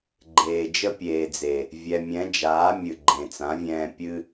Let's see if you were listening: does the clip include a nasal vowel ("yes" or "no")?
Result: yes